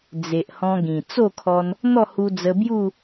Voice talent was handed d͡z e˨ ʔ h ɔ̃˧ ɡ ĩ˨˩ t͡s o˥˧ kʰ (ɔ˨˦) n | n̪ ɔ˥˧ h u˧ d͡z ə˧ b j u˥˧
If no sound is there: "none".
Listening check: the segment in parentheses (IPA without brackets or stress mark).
ɔ˧